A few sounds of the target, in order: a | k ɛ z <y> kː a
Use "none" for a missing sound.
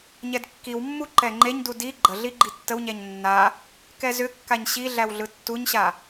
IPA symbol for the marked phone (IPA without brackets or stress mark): ʏ